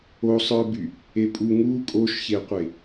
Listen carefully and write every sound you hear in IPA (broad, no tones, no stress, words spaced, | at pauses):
osˤə˞by | epʼu ŋu kʼoʃçeqʷe